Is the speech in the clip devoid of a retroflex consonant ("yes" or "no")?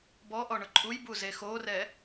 no